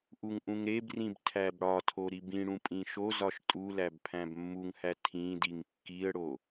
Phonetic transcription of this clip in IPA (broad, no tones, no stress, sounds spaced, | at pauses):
ʔ u ŋ ʔ ũ ŋ ɾ e b r ĩ b tʰ æ b ɽ ɒ tʰ o ɾ i b ĩ ɽ ũ pʼ ĩ ʃ o z ɒ ʃ tʼ u l æ b pʰ æ̃ b mː u ŋ h æ tʰ ĩ d i ŋ kː i ə̯ ɽ o